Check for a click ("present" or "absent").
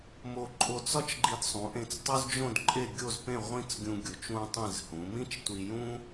present